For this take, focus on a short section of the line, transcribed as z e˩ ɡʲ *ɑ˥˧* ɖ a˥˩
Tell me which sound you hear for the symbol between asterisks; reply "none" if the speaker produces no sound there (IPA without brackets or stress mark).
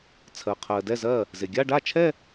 a˥˧